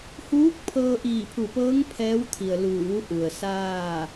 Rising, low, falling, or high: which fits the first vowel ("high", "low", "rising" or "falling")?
rising